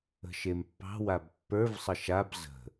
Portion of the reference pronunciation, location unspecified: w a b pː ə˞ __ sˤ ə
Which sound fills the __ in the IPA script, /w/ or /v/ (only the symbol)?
v